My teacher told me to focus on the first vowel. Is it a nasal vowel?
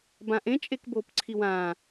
yes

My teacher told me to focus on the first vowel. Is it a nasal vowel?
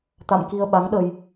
no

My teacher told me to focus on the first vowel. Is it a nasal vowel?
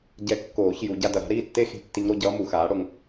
no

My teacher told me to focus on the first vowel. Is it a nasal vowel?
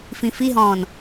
yes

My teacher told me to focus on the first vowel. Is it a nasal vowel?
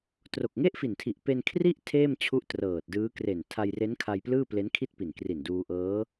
no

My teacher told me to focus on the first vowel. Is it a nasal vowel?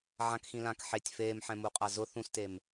yes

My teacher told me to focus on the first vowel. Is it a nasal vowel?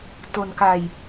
no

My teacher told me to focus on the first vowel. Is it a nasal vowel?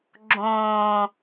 yes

